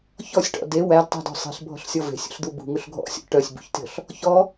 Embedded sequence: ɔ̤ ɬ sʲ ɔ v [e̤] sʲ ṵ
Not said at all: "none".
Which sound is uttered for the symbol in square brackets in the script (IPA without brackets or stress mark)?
e̤